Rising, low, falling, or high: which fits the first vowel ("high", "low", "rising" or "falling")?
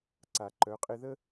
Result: low